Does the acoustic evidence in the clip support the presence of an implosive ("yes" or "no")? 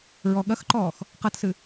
yes